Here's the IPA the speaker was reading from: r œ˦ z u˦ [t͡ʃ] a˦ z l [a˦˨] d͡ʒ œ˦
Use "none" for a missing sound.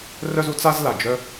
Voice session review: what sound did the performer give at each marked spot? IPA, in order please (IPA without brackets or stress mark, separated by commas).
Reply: t͡s, a˨